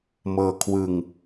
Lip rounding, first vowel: unrounded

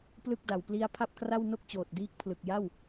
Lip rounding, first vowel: unrounded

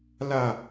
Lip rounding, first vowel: unrounded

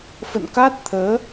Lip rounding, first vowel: unrounded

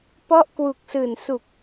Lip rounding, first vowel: rounded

